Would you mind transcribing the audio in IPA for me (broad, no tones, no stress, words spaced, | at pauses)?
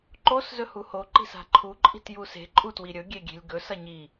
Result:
ǃos zɵhuho ǃi̤sa̤ǃʰu ǃʼi̤tjuse̤ ǃʼutwiɾʲɵ ɡʲeɡʲe̤lʲɡɵ sɐɲi